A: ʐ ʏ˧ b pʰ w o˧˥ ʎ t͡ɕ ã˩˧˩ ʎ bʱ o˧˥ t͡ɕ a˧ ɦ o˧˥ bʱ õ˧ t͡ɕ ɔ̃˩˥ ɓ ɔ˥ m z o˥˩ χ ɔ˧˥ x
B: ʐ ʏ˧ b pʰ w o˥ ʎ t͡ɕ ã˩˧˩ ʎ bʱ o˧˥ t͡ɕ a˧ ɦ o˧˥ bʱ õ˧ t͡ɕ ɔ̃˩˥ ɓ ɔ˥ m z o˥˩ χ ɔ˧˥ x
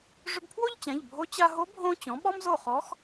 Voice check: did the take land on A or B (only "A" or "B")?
B